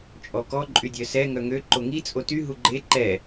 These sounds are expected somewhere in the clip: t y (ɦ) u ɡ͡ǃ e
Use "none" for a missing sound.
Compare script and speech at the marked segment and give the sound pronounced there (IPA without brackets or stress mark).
ɦ